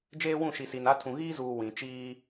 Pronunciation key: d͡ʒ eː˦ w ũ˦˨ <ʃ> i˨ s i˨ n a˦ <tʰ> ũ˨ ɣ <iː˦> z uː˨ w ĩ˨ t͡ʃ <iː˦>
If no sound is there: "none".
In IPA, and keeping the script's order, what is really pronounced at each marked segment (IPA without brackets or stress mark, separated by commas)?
ʃ, tʰ, iː˦, iː˦